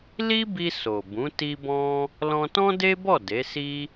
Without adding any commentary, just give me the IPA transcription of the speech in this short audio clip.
li˦bi˧ so˨bũ˨˦ ti˦bɔ̃˦ | lɔ̃˧tɔ̃˦de˦bɔ˦˨ de˨˦si˦

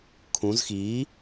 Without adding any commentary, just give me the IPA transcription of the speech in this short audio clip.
kʰũz xi

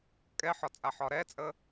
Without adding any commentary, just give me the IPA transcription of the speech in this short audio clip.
kʼɛħɒt͡sʼaħɒ ɾɛt͡sʼə

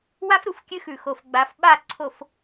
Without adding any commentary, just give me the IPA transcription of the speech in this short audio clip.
wa˦fɾu˨fkʲɨ˦xʉ˨ xo˨fɡ͡ba˨˦fɓa˦˨ ǀʰo˨f

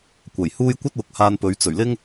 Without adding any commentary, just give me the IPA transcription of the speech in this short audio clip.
kʷɐ˨˩jhuː˥j kʷɐ˥t̚wʊ˨k̚haː˧npɵ˨˧ɥ t͡sɵ˨˩ɥlɪ˥ŋ

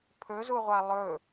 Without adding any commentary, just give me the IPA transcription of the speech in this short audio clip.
pʰɵzuʁʷa lˠɵ

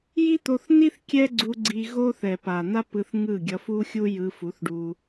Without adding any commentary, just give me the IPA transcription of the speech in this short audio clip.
ji˦t̪o˧θni˦θ kʲɛ˦ɡ͡ǀu˧ ɡ͡ǀi˧ɣo˦θɛ˨ pa˨ n̪a˦pɯ˧θŋɯ˦˨ ɡʲʌ˧fu˦xʲu˦ jɯ˧fu˨˦θɖu˧

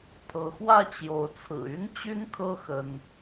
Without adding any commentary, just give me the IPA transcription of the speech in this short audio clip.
pʰɤ˨˦xwä˥˨t͡ɕjo˨˦ʊ̯t͡sʰɹ̩˨˩ y˦nt͡ɕy˦nkʰɤ˦ xə˦n

